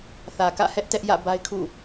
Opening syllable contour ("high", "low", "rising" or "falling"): low